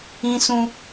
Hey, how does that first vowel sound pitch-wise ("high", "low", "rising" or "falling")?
high